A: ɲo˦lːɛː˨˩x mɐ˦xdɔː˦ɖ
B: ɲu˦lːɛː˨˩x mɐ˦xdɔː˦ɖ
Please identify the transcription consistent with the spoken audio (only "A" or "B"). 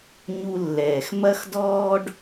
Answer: B